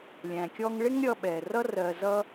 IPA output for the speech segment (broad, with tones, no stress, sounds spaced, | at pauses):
lʲ æ̃˩ kʲ ɔ˧ ŋ ɭ ɪ˥ ŋ ɾʲ ʌ˧ ɓ ɛ˩ r ʌ˥ r ɜ˧ z ʌ˥